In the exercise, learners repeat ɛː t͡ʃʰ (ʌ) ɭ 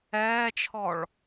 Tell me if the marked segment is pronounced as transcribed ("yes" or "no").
no